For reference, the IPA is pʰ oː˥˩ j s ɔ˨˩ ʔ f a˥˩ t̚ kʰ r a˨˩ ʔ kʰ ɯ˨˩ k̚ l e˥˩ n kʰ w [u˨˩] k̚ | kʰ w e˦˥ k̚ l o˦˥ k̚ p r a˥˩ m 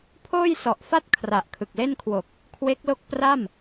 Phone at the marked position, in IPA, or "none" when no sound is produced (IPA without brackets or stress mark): o˨˩